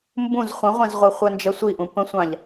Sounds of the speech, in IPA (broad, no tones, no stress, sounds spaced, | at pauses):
m b ũ z χʷ ə̃ ʁʷ ɛ̃ z ʁʷ ɜ χʷ ɜ n d͡ʒ ɜ sʷ i ʔ ũ p ə̃ sʷ ɑ̃ ʎ